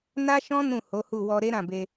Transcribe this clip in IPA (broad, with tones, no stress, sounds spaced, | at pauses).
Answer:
n a˦ ʃ ɔ̃˦ n ũ˦˨ h o˨˦ h u˦˨ w ɔ˧ ɾ e˦ ɾ ã˦˨ b e˧